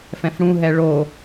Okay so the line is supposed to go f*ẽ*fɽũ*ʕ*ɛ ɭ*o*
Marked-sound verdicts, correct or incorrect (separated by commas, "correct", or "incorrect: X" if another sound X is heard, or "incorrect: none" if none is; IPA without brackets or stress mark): incorrect: ɛ̃, incorrect: ɦ, correct